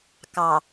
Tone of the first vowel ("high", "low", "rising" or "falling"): low